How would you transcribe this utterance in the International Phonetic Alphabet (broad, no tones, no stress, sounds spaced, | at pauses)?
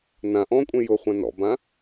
n ã ʔ ɔ̃ kʷʼ ẽ j ʊ χʷ ã n ɔ̰ b ã